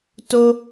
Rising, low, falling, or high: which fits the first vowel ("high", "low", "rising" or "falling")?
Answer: high